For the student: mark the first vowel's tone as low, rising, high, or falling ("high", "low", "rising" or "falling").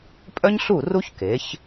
high